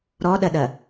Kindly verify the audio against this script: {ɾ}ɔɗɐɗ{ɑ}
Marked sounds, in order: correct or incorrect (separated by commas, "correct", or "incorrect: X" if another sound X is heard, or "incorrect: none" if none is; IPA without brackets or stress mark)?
correct, incorrect: ɐ